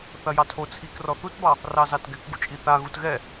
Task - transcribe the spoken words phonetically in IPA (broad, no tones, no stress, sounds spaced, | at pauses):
θ ɐ j ɑ tʰ o t͡sʰ i k r ɔ θ u t b ɑ | r ɑ z ɑ t ɡ ɛ k ɡ u t͡ʃʼ i θ a ɣ u t ɣ ɛ